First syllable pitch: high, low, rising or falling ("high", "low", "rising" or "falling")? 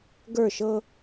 falling